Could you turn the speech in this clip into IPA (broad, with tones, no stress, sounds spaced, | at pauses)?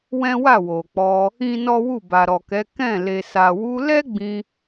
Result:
w ɛ̃˦ w a˦˨ w o˨ k͡p ɔ˧ | ĩ˦ n ɔ˦ w u˦˨ b a˨ ɾ ɔ˨ k ɛ˨˦ k ɛ̃˦˨ l e˨ s a˨ w u˧ l ɛ˦ ɡ͡b ĩ˧